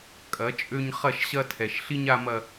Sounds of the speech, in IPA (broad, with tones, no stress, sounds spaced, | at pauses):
kʼ ɐ˨˦ t͡ʃʼ ø˦ ɲ χ ɐ˦˨ ʃ ɕ ɐ˦ tʰ ɛ˨ ʃ ɬ i˦ ɲ a˦ m ɐ˦